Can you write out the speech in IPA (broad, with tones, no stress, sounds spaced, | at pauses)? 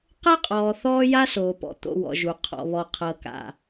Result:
q ɤ˦ qʼ ɔː˨ θ ɔː˦ j a˦ s oː˨ p ɔ̰˨ t̪ o̰˨ w ɔ̰˨ ʒ u˨ qʰ ɔ̰˨ β ɔ˨ qʰ ɤ˨ k a̰˨